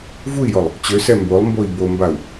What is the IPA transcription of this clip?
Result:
vui̯jɔlˠ | t͡ɕøsɛ mbolˠmboi̯ bombau̯

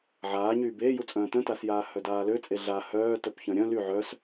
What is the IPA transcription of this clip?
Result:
ʕaːɲyːb eːjut͡sʼœ̃ː tœ̃tasjaː hœdaːløt͡sʼe ɮa hœː tœpçœ̃ɾʲœ̃ ly ʕœs

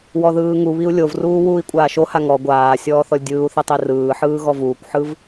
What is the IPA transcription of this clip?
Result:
wɔðɯːŋuβiu̯ lʲovruː wuːi̯kʷʼaːʃoha ŋɔ ɡʷaːsʲɔː θɔlʲdʲɯːu̯θi tˤirɯːħɯː ɣɔvuːkʷħɯv

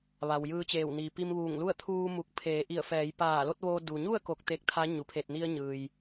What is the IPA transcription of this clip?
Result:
ʋa˩wjɯː˧t͡ɕeː˧˩w ni˩pi˧m ʋuː˧˩ŋlu˥˨ə̯ t̪ʰuː˧mu˧˩k̚ pʰeː˩˧ʔi˧˩ə̯ fɛː˩˧jpaː˧˩lo˥˨t̚ ʋoː˧ du˩ɲu˥˨ə̯ ko˧k̚t̪e˧˥k̚ t̪ʰa˧˥ ɲu˩pʰe˧˩t̚ ni˧ə̯ɲɯː˩j

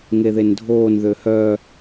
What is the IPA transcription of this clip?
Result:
ŋeðendʱoːn ðøhœ

